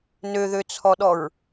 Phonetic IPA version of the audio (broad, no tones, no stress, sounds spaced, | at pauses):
n ø ð ø t͡sʰ ɔ ɗ ɔ ɹ